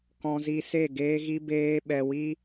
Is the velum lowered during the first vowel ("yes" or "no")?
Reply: yes